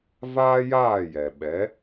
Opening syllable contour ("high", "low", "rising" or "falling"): high